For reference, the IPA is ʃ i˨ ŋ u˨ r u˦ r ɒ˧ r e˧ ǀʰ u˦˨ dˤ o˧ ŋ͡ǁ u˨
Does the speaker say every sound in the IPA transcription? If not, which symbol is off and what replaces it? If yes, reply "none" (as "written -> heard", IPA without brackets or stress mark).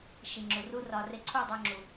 ŋ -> ŋ͡ǁ